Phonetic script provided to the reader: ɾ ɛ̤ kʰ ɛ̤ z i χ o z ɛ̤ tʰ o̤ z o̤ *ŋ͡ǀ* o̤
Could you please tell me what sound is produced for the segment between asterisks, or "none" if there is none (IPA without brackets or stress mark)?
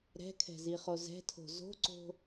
ǀ